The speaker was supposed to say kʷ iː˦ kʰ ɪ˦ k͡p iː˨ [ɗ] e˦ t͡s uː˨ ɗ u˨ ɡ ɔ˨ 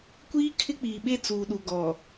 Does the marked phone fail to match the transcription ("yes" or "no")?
yes